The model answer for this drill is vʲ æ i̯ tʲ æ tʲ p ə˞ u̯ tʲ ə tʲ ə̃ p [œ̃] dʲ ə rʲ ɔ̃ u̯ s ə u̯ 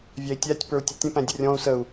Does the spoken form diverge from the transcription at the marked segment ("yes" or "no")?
yes